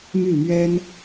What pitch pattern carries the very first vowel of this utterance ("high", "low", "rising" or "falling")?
falling